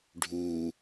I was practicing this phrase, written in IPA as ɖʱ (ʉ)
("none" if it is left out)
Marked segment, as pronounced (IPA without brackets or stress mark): u